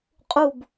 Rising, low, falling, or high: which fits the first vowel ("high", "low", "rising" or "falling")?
falling